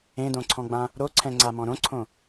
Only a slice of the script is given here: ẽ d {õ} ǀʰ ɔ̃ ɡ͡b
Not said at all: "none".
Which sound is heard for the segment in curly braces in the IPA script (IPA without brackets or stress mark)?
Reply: õ